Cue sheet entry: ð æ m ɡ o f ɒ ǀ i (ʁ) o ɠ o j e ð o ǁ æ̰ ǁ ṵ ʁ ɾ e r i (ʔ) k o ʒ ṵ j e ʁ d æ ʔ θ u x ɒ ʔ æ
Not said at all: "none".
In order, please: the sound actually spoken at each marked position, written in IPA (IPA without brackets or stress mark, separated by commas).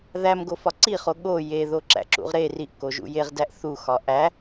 χ, ʔ